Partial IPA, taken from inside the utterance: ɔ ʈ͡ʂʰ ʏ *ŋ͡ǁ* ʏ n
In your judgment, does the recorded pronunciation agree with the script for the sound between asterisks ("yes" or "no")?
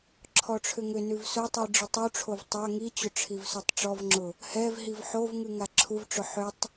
no